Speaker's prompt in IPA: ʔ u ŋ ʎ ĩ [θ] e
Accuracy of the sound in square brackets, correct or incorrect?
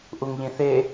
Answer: correct